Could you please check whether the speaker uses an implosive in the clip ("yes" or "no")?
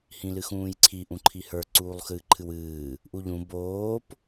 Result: no